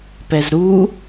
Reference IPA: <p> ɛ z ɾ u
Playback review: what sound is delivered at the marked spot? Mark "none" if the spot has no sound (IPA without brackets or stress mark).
p